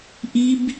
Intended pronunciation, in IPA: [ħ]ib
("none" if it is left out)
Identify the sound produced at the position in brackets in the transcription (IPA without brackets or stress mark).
ʔ